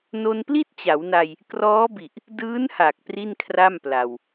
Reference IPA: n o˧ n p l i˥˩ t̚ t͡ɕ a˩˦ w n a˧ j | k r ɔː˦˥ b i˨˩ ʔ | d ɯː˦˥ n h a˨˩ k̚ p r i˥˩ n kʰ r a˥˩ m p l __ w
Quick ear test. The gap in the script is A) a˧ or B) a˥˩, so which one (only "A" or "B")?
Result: A